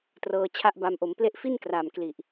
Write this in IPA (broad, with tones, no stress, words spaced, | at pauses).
trɤː˧t͡ɕʰa˦˥ʔba˧m ʔo˩˦mple˦˥ʔfi˥˩n kra˨˩mkli˨˩ʔ